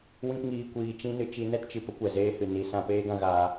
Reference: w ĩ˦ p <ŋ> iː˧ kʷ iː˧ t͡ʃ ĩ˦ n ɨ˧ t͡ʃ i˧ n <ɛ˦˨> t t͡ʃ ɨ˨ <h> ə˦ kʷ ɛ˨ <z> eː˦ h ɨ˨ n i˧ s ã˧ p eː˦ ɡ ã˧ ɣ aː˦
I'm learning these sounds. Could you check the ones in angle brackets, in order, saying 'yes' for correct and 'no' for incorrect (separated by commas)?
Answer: yes, no, no, yes